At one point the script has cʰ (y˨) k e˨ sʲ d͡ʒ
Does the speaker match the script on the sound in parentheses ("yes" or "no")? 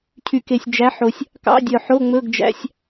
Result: yes